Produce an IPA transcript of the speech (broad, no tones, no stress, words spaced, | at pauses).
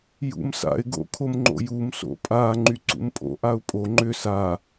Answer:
jṵmsa̰ɪ̯ ɡo̰kʰomŋ͡ǃo̰jum so̰pʼa ŋ͡ǃyǀṵmpʼo̰ ʔaʊ̯pʼo ŋ͡ǃʏ sa